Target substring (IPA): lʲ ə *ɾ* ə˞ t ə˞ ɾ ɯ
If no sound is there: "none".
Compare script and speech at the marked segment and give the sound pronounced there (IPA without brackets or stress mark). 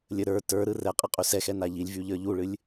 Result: ɾ